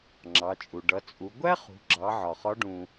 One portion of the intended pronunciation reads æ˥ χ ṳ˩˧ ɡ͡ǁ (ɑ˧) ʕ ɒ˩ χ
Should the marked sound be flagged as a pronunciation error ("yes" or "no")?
yes